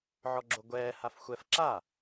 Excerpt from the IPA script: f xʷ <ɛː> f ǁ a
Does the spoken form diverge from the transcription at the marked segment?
yes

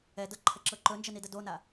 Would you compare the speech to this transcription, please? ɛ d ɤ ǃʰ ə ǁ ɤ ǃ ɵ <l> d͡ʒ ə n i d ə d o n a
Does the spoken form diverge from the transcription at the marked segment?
yes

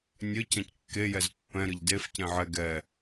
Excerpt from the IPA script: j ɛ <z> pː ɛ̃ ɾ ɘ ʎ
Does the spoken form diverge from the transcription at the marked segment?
no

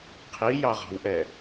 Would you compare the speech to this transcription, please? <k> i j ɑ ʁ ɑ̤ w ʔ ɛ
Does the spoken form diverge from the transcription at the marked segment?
yes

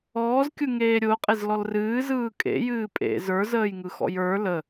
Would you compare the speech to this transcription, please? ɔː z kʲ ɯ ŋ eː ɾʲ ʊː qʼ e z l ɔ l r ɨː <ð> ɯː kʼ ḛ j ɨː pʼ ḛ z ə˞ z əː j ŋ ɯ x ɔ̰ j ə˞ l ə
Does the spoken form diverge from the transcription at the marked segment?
yes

